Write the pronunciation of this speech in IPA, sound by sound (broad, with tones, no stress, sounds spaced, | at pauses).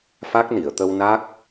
f a˦˥ k̚ n i˨˩˨ ə̯ t̪ ə˧ w n a˦˥ k̚